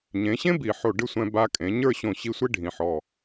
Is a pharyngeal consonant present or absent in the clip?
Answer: present